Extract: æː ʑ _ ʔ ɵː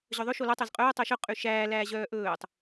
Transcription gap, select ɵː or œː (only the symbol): œː